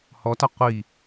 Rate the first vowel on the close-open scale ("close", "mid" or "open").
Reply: mid